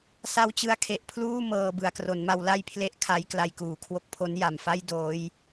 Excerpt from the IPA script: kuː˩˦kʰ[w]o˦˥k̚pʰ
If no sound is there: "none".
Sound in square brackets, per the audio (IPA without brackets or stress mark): w